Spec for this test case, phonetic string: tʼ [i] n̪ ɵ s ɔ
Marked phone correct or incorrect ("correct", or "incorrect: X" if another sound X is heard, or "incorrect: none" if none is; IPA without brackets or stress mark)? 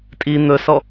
correct